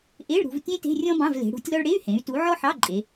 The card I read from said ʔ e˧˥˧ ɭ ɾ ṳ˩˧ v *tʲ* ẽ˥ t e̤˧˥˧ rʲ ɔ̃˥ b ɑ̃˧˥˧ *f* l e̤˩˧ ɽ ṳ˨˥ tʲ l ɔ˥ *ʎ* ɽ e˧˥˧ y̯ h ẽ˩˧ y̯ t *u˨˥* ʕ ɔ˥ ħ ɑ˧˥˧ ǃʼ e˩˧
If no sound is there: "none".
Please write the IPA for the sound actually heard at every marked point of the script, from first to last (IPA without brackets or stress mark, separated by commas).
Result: tʲ, v, ɭ, u˨˥